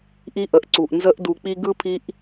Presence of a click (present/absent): present